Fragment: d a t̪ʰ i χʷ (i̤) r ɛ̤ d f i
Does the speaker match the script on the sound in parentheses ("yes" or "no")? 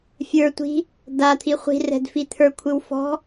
yes